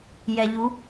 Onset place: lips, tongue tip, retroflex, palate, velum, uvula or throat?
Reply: palate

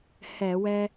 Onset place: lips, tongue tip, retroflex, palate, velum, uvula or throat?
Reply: throat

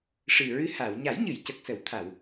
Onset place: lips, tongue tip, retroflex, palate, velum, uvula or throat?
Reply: retroflex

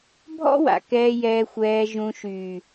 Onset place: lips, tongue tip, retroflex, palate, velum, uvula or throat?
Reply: lips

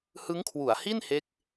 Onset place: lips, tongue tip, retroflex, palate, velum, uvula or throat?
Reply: throat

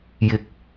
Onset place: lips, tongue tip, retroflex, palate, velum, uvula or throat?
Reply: palate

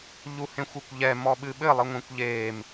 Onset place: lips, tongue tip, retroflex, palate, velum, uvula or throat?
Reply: palate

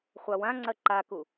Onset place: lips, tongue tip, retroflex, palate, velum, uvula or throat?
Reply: uvula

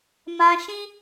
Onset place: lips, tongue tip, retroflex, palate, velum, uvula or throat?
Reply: lips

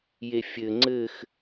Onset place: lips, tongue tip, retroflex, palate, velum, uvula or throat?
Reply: palate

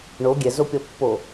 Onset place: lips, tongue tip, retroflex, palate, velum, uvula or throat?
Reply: retroflex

